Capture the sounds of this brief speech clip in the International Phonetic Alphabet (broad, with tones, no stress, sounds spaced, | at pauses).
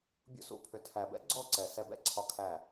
bʲ ṵ˧ s ṵ˧ pʰ ʏ˨ tʰ æ˨ b ɛ̰˦ ɡ͡ǀ ɔ˦˨ ǀ ɛ˨ s ɛ˧ b ɛ̰˦ ǀʰ ɒ˧ kʰ æ˦˨